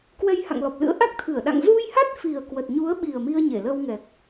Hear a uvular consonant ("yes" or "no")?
no